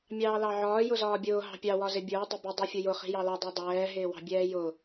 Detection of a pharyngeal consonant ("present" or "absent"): present